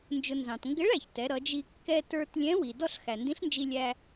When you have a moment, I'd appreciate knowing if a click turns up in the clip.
no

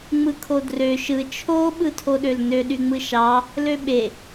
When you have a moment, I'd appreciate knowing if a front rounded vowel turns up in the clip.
yes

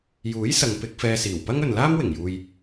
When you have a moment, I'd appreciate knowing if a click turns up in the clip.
no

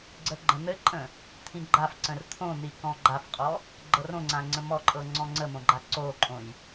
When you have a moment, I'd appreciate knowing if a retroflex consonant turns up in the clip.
no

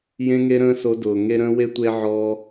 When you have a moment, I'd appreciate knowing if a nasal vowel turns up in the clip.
yes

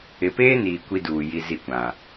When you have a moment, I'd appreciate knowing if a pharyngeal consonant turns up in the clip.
no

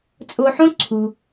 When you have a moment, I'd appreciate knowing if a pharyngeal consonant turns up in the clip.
yes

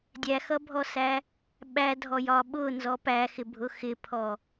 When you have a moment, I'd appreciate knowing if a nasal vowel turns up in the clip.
no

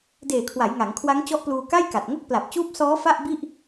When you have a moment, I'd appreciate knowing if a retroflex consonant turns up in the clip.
no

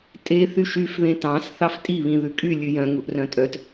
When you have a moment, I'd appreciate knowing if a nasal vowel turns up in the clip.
yes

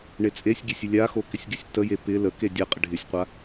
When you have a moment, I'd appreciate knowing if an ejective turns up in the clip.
yes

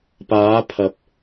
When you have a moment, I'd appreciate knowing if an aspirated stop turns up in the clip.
yes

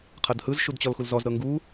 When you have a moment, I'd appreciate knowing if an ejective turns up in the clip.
no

